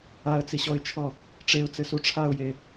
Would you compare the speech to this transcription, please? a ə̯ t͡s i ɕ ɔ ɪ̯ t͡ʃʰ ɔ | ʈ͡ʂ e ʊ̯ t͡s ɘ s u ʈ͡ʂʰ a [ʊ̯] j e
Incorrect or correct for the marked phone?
correct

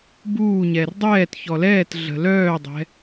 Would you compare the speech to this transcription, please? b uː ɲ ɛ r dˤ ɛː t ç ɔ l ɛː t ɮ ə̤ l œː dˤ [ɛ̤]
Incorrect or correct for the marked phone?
correct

